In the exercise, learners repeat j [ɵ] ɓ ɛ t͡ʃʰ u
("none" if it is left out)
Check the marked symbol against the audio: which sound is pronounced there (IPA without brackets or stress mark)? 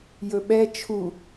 ɵ